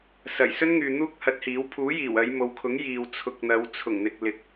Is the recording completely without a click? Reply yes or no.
yes